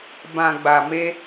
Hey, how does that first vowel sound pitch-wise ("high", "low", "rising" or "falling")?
low